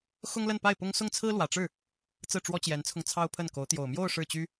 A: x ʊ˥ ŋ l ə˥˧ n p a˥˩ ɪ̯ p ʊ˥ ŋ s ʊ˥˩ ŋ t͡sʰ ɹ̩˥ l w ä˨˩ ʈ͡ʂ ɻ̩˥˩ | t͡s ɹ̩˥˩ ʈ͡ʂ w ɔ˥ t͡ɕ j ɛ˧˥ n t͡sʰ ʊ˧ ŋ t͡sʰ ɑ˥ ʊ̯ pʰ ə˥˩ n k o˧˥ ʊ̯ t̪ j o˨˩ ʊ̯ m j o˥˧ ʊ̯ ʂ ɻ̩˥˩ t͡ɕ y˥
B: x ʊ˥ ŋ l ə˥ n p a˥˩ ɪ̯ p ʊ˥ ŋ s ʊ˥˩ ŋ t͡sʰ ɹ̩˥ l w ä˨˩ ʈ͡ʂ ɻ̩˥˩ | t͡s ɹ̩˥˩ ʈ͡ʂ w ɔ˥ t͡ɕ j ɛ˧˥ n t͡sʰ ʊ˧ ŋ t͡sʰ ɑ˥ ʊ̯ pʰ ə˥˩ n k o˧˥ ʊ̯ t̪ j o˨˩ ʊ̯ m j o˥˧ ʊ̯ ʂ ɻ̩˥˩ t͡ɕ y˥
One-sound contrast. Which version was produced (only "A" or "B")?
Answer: A